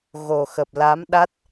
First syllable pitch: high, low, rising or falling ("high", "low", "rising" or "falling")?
low